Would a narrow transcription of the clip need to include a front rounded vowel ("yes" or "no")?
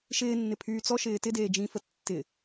yes